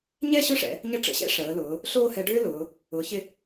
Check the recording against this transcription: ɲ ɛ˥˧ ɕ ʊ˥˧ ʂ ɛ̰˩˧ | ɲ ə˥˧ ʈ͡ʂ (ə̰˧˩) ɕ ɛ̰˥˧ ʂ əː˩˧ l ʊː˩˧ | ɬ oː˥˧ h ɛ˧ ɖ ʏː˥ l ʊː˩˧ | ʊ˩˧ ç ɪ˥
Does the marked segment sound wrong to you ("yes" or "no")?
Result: no